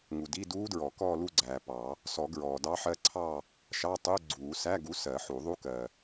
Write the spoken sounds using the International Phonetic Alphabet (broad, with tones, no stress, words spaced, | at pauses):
ŋu˨di˧˥˧duː˦˥dɹɔ˨˩˦ kɔː˥˧lu˥˧ɡ͡ǀæː˨pɑ˨˩˦ | sɔ˨˩˦ ɡɹɔː˨dɑ˦˥ħɜ˦˥ǀʰɑ˥˧ | ʃɑ˧˥˧tˤu˧˥˧ɡ͡ǀuː˨˩˦ sæ˧˥˧ɡu˨˥ sɜ˨˩˦ħu˨˩˦ðˤu˦˥kɜ˨